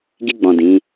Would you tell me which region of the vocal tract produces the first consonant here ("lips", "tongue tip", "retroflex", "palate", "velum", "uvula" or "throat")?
velum